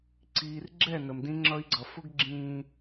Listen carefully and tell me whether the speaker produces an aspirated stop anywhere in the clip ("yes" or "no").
no